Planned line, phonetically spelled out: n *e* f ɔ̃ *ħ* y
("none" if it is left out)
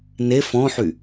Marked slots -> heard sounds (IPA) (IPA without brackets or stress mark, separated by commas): e, ħ